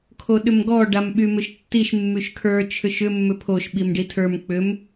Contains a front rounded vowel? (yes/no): yes